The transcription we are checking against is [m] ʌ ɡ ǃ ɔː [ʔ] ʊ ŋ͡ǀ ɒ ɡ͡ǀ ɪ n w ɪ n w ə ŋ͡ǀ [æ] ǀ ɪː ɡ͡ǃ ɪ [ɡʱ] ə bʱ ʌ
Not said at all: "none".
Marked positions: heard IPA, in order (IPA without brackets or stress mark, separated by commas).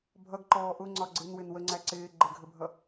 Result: bʱ, ʔ, æ, ɡʱ